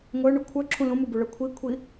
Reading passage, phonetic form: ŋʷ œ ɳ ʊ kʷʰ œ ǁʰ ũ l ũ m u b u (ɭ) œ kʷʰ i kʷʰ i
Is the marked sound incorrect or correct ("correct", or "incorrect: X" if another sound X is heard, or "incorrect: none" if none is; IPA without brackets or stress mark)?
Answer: correct